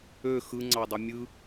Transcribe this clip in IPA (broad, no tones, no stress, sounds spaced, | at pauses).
ø x ɯ ŋ͡ǀ ɑ dˤ i mʲ ɯ